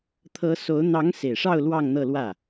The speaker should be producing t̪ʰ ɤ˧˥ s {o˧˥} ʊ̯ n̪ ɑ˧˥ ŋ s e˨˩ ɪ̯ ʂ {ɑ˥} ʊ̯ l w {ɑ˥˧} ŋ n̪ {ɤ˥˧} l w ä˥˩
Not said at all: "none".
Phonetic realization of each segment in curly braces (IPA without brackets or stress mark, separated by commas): o˧˥, ɑ˥˧, ɑ˥˧, ɤ˥˧